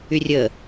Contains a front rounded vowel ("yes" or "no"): yes